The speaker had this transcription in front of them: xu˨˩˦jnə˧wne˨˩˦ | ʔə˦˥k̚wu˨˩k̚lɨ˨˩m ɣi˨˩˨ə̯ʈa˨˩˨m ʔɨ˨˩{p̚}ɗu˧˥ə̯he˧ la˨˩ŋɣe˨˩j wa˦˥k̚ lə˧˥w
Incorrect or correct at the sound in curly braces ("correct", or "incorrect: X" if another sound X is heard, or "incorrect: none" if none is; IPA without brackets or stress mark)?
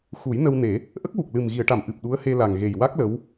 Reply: correct